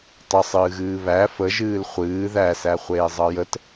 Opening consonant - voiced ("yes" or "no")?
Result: no